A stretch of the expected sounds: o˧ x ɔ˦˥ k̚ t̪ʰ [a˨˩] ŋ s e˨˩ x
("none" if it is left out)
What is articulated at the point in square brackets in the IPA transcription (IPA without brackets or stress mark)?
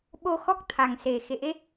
a˨˩